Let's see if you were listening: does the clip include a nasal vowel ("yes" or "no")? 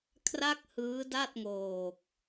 no